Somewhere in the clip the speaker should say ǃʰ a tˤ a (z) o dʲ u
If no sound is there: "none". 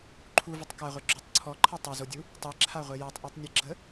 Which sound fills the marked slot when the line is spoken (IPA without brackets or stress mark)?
z